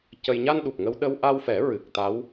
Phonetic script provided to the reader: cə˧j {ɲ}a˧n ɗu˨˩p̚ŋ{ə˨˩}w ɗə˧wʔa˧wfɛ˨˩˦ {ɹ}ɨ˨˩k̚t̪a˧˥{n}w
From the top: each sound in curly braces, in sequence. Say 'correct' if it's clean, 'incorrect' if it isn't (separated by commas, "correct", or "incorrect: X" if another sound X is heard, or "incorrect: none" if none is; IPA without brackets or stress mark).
correct, incorrect: ə˧, correct, incorrect: none